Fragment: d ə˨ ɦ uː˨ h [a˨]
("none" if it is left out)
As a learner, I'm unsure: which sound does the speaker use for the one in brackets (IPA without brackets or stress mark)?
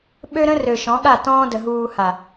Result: a˨